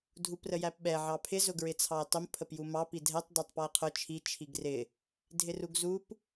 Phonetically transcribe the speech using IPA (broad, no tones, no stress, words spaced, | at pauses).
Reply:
dʱuprəjæpɓɛ ʕɑpʰɪ zʊɡɹɪt͡sʰɑe̯tˤʊm pʰəpjumɑ pidʱɛtˤ dɑtˤpɔe̯qʰʊ t͡ʃʰi t͡ʃʰiɡrɪ | dʱɪruɡzup